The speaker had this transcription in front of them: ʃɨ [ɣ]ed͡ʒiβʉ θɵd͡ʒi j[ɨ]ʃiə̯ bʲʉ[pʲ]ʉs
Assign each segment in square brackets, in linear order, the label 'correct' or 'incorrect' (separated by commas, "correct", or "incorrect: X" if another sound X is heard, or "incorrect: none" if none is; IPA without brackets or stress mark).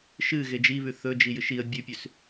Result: correct, correct, correct